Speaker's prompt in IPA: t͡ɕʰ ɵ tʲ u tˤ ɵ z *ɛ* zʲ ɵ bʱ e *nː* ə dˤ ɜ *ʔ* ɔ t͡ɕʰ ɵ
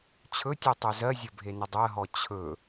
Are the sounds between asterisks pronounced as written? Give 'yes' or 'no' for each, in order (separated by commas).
no, no, no